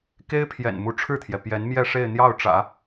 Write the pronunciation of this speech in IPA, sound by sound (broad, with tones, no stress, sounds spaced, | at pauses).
k e˥ ɪ̯ pʰ j ɛ̰˨˩ n m u˧˥ ʈ͡ʂʰ ɻ̩˥˩ t̪ʰ j ɛ˩ p j ɛ˧˥ n m j ɛ˥˧ ʂ e˥˧ ɪ̯ n̪ j ɑ˥˩ ʊ̯ ʈ͡ʂ ä̰˨˩˦